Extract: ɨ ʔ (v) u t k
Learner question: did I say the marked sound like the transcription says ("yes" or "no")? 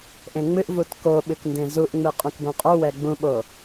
yes